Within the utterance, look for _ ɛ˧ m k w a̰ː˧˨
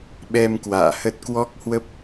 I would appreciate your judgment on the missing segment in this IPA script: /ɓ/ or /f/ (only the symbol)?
ɓ